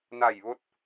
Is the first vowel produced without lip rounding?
yes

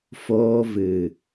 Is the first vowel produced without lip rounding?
no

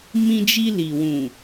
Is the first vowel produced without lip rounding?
yes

